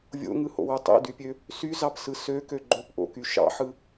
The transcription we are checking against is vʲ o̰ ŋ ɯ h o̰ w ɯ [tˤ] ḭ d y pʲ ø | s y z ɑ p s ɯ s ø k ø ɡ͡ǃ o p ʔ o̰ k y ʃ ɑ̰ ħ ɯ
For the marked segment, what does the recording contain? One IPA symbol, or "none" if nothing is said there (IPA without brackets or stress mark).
tˤ